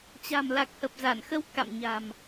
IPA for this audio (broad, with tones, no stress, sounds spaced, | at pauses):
t͡ɕ a̤˨˩ m l a˨˩ k̚ h ə˨˩ p̚ z a˧˩ n x ə˧ w k a̰˧˨ m ɲ a̤˨˩ m